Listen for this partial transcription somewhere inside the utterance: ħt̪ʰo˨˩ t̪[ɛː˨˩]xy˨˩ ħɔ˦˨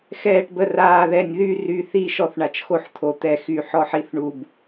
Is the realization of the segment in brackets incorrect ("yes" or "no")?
yes